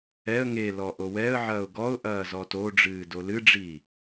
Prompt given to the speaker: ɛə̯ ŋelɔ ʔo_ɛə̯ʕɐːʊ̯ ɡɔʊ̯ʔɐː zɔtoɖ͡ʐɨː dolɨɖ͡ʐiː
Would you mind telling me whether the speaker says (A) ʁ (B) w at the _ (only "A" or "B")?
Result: B